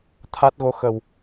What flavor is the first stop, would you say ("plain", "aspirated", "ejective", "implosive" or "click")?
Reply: aspirated